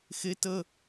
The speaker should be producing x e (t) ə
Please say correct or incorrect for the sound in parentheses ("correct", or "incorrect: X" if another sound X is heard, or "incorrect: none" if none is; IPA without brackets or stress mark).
correct